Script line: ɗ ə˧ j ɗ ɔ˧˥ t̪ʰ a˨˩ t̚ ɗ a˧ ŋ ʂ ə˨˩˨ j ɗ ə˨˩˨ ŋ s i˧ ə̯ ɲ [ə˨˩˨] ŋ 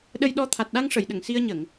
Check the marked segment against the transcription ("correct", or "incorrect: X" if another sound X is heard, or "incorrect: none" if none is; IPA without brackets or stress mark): correct